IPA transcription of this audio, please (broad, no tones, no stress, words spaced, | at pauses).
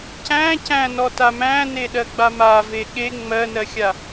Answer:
cæ̃ cæ̃nɔta mæ̃neɗɜɡ͡ba mave ɠe ŋ͡mɜnɜxʲa